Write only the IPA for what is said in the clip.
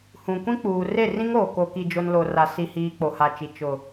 h ũ˨ kʷ ĩ˦ k͡p uː˨ r e˦˨ r ĩ˦ ŋ oː˨ k o˨ k i˨ d͡ʒ o˨ n l o˨ r a˨ s i˨ h iː˨ k͡p o˨ h a˨ t͡ʃ i˨ t͡ʃ ʊ˨

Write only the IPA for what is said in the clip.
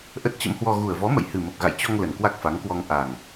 ʔ ə˦˥ t̚ t͡ɕ ə̰˧˥ m h w ɔ˧ ɣ u˨˩ ə̯ v ɔ˨˦ m ə̰˧˨ j h ɨ˨˩ m ə˨˩ p̚ ɣ a̰˧˨ j t͡ɕ ɔ˧ ŋ l ə˨˩ n k w a˦˥ k̚ f a˨˦ ŋ k w ɔ˧ ŋ ʔ a˨˩ ŋ

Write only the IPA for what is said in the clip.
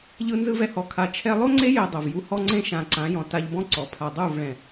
ʎ ɯ˧ n z ɯ˧ v ɛ˧ h ɔ˨ kʰ a˨ t͡ʃʰ ɛ˧ lˠ o˦ ŋ͡ǀ e˦ j e˧ dˤ o˨ v j u˧ h ɔ˦ ŋ͡ǀ ẽ˦ ʃ ã˨ ǀ ã˨˦ j ɔ̃˨ t a˧ ʎ b ɔ̃˦ ǀ ɔ˨ pʰ a˨ dˤ u˦˨ v ɭ ɛ̃˨

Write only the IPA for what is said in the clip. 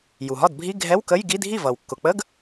j u˩ ɦ ɒ˥˩ d bʱ i˧˥˧ ɡʱ ɛ˧˥˧ w k ə˧˥˧ j ɡ i˧˥˧ dʱ i˥˩ v ʌː˩ w kː ʊ˩ k͡p ə˧˥˧ ɡ

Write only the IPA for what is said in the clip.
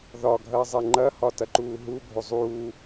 ð ɒ ɡʱ ɐː zˤ ɛ ŋ͡ǃ ɐ h ɒ t ɐ ǃ uː ɦ u bʱ o zˤ uː

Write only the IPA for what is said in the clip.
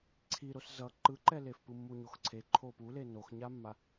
ǀʰ i ɾ o s z ʌ ǃ ɯ ǃ ɛ l e f p ɯ mː u ɲ o x ǀʰ e ǃʰ o p u l e n o x ɲ a mː a

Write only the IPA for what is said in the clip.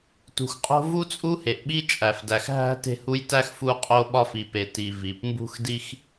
t ṳ˩ x qʼ o̤˦ v u˥ t͡sʼ u˥ h e˩ ʔ ɓ i˥ t͡ʃʼ æ˩ f d æ˨ x ɦ æ̤˦ t e̤˦ h u˦ j t æ˥ x f u˦ qʼ o˦ ɓ ɒ˦ f i˨ p e˨ t i˨ v i˩ p m b ṳ˥ x d i˥ x

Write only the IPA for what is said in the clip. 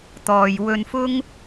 t̪ ɔː˨ j w ɵ˧ n f ʊ˥ ŋ

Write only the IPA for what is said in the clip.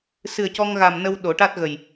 s ɨ˨˩ ə̯ c ɔ˧ ŋ ɣ a˨˩ m n ə˧ w ɗ o˨˩˦ ʈ a˦˥ t̚ ɣ ə˨˩ j

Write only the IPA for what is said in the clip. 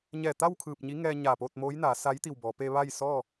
ɲ ɛː˧˩ t̪ a˥˨ w kʰ ɯː˧˩ p̚ ɲ i˧˥ ŋ ɛː˧ ɲ aː˧˩ p oː˥˨ t̚ m oː˧˥ j n aː˩˧ s a˧˥ j t̪ i˧˩ w b ɔː˩˧ p e˧ ʋ a˥˨ j s ɔː˥˨

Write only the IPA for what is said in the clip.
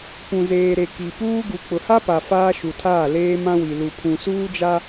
p ũ˨ z eː˨ ɾ e˨ k i˨ p uː˦ ɡ u˨ k͡p ʊ˨ h a˦ p a˨ f aː˦ ʃ u˨ tʰ aː˦˨ l eː˦ m ã˦ w i˨ l u˨ pʰ ũ˨ s uː˦ d͡ʒ a˦

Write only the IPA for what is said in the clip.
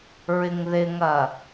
ɹ ɪ ŋ ð ɪ ŋ ɐ

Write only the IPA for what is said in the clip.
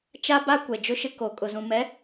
t͡ʃ a˦ b a˦ kʷ ɛ˨ d͡ʒ ʊ˦ ʃ ɪ˦ k o˨ kʼ ʊ˨ z ũ˨ m ɛ˨˦

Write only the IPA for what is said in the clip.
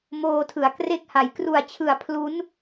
m oː˧ tʰ ɯ˩˦ a̯ k r e˦˥ k̚ h a˩˦ j k r u˨˩ a̯ t͡ɕʰ ɯ˨˩ a̯ pʰ l u˦˥ n

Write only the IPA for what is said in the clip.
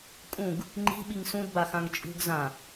kʼ ũ ɡ | ŋ͡ǃ i̤ ɓ i ŋ s ũ d b a x ã ŋ t͡ʃʼ ṳ ɡ z ã

